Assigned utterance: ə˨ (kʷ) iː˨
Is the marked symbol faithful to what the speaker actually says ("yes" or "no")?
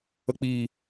no